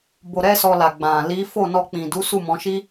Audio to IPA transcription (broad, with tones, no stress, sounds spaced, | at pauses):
b o˧ ɾ ɛ˦ s ɔ˧ l a˨ ɡ͡b ã˨ l i˨˦ f o˦˨ n ɔ˧ k͡p ĩ˨ d u˨˦ s u˦˨ m ɔ̃˨˦ ʃ i˦